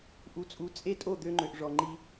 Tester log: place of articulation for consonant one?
glottal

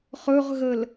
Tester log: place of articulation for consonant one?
uvular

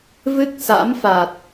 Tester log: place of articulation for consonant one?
labial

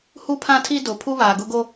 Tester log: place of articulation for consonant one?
glottal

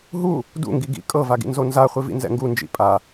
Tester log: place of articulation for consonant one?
glottal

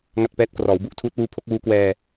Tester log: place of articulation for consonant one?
velar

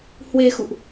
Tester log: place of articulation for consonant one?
glottal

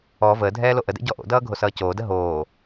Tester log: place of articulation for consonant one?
labial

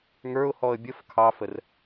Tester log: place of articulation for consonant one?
velar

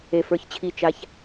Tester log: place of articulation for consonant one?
labial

